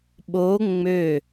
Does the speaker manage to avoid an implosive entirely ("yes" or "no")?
no